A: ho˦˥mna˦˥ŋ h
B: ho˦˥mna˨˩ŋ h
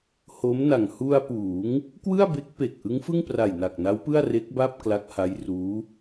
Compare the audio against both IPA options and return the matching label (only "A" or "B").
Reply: B